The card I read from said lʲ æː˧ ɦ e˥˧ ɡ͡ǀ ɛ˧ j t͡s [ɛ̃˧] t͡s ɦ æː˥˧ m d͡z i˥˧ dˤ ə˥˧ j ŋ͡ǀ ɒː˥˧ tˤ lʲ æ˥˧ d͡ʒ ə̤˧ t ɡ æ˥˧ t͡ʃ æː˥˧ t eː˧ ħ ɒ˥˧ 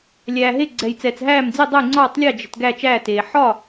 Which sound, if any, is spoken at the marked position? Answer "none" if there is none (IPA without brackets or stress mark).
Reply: ɛ˧